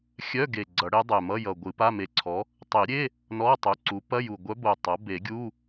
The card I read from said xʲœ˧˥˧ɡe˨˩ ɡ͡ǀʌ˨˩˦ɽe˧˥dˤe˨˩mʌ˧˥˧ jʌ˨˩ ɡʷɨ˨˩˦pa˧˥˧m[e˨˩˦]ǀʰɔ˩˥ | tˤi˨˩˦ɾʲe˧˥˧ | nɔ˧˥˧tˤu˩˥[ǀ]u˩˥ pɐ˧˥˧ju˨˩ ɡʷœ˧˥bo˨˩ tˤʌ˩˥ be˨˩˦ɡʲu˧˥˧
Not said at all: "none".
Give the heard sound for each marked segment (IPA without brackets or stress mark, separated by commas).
e˨˩˦, ǀ